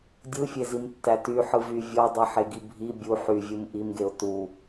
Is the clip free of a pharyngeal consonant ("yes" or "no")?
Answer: no